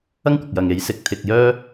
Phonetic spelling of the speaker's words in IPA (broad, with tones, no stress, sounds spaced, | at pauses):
ɐ˥ ŋ kʷ ɐ˨ k̚ j ɐ˨ ŋ e˨˥ j s ɪ˨ k̚ t̪ʰ ɪ˧ k̚ j œː˥